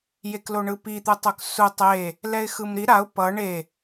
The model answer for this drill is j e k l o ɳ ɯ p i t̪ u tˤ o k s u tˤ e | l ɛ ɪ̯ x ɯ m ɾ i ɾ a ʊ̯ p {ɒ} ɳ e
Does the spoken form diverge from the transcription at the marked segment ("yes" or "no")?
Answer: yes